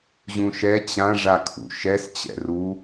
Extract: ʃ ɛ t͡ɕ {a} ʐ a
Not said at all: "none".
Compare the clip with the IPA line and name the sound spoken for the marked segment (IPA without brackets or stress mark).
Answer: ã